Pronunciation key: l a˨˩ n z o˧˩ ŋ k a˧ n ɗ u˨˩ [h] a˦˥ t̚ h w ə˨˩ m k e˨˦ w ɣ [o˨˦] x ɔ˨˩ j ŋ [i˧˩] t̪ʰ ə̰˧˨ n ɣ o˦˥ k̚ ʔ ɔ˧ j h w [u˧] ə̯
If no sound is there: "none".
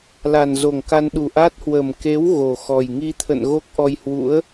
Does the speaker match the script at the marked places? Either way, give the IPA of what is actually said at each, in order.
ʔ, o˨˩, i˧, ṵ˧˥

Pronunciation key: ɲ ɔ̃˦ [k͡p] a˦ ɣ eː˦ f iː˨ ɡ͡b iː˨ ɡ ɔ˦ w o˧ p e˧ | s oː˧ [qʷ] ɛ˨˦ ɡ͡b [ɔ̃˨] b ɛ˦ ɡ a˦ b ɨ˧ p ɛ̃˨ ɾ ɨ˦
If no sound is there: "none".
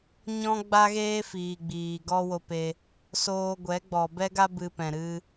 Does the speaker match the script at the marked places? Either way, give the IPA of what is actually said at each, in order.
ɡ͡b, ɡʷ, ɔ˨

